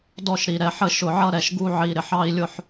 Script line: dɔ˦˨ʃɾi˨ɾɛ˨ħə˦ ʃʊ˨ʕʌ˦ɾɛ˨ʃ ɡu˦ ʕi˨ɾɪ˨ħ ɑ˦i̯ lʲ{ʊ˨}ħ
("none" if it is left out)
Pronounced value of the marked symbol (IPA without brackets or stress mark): ʊ˦